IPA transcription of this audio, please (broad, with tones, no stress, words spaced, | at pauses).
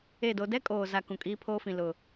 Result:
e˦˨do˦ dɛ˦kʼoː˨za˨ kũ˨kʼiː˦pʰoː˦ fĩ˨ lʊ˨